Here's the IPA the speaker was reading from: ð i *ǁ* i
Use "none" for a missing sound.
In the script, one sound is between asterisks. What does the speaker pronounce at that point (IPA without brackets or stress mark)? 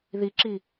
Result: ǁ